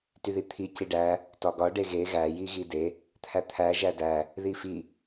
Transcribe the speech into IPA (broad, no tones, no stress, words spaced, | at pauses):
tyðit̪ʰi ciɖæ | tɒɡɒ ɖeɣe ɣæ jiɣide | t̪ʰæt̪ʰæ ʒædæ | ðifi